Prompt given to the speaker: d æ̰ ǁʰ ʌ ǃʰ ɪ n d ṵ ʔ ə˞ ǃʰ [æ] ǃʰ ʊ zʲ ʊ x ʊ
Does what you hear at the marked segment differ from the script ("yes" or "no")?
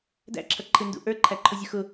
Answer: no